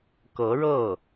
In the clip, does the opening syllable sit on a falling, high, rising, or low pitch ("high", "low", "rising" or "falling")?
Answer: rising